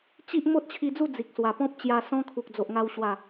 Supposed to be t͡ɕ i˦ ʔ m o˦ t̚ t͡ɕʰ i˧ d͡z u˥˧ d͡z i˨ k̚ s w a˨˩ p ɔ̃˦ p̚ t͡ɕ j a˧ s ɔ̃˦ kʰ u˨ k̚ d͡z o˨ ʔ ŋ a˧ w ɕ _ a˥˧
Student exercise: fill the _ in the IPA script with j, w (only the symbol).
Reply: w